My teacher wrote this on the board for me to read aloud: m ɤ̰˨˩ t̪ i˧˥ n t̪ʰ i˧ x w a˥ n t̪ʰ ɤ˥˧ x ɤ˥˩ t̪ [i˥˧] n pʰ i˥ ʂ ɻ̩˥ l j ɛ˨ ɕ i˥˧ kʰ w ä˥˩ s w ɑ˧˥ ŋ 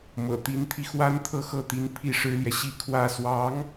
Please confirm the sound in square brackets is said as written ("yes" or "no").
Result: no